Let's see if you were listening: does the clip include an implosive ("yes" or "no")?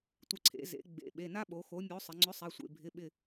yes